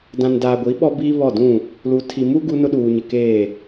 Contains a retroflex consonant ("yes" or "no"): no